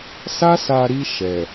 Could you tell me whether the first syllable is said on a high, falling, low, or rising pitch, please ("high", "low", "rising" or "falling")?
high